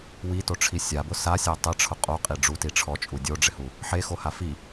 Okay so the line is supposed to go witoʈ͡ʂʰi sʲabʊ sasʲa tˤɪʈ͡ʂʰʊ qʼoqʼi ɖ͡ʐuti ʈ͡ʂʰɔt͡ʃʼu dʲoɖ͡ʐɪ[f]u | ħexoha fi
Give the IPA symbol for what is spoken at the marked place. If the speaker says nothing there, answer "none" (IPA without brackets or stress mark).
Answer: h